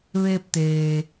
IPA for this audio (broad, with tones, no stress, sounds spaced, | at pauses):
ʋ eː˧ p̚ t̪ eː˩